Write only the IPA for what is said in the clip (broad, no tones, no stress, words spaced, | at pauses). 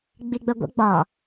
ɡ͡biɡ͡bəɡʷə̰ ɡ͡bɒ